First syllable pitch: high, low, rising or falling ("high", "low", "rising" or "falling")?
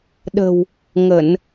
low